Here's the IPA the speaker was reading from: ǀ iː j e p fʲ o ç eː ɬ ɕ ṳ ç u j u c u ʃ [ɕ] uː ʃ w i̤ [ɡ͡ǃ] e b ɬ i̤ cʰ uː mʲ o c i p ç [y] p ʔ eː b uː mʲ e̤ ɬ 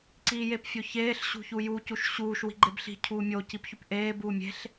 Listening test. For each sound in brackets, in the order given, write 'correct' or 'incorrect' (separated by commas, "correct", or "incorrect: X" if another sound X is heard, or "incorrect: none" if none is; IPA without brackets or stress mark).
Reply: correct, correct, correct